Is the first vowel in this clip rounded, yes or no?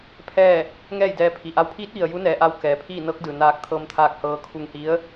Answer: no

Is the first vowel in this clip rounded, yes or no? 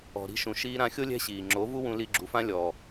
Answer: yes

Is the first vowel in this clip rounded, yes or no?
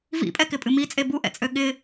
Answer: no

